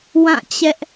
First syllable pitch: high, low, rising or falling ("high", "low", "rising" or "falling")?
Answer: falling